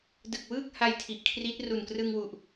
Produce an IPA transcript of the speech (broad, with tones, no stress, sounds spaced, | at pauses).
d ɯ˨˩ k̚ w ɯː˥˩ k̚ h a˧ j tʰ i˨˩ ʔ kʰ r i˦˥ t̚ r u˨˩ n k r ɯ˧ ŋ w u˨˩ ʔ